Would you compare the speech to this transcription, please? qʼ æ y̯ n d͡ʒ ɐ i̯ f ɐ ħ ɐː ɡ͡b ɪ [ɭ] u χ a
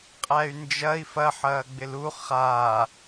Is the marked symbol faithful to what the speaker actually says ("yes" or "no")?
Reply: no